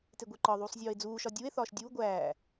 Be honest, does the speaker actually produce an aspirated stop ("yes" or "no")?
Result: no